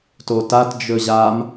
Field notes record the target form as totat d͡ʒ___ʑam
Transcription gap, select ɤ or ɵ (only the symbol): ɵ